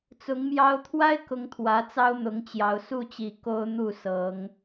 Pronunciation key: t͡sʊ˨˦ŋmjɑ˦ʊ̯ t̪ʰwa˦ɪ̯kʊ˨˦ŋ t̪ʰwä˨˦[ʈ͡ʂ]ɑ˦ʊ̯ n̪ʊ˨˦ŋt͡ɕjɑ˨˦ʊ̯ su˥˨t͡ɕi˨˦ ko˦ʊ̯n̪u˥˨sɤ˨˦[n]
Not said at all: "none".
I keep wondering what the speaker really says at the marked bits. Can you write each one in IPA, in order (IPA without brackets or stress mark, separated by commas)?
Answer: t͡s, ŋ